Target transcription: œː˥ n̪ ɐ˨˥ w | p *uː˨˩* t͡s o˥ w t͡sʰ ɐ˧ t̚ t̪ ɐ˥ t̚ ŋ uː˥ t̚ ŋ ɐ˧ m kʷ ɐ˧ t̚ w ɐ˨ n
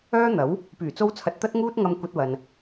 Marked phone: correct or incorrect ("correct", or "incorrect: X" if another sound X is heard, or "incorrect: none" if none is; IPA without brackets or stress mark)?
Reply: incorrect: yː˨˩